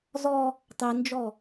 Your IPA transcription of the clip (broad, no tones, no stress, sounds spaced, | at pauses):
z ɔ | tˤ i n d͡ʒ ɔ